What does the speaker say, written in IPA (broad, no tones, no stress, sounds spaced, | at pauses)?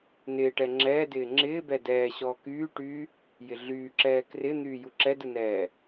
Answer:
n ɪː ʈ ɛ ŋ͡ǁ ɛː d ɪː ŋ͡ǁ ɪː b ɛ d ɛː ɕ ɔː k yː ʈ yː | j ɪ ɮ yː ǁ ɛː k r ɪ n̪ yː j u ǁ ɛ d ɯ n ɛː